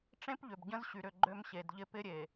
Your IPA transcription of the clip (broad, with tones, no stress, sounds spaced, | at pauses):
ʈ͡ʂ ẽ˦ p ʎ ʏ˨ b ɟ ə̃˦ z ɕ y˨ ɾ ʏ˦˨ ɡ͡ǃ ø˦ m ɕ e˨ d ʎ ɪ˦ p ɪ˦ ɾʲ e˨